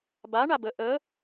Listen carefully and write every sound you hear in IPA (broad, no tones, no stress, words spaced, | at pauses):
ba ɳabə ʔə